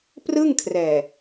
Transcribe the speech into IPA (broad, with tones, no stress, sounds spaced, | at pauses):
p r ɯ˥˩ ŋ kʰ r ɛː˨˩